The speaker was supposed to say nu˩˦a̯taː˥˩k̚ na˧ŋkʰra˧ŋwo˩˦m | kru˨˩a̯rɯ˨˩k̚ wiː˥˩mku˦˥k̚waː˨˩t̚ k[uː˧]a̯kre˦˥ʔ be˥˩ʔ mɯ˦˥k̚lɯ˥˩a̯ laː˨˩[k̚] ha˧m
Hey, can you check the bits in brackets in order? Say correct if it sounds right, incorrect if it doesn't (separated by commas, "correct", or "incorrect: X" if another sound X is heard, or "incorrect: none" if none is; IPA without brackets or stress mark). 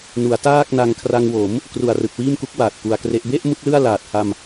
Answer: incorrect: u˧, incorrect: t̚